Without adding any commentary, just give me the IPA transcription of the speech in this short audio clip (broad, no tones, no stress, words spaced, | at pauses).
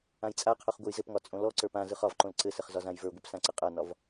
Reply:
ãjt͡sʼaqʰoχ ɡʷɘjzɘpŋɒ t͡sʼõlɔǀə˞p ãzɯχ ɒvǃõl ǀɘsɘχ zɒzãjvə˞ɡʷɘp sãǀɘqʼanɒv